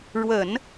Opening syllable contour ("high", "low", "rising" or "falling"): low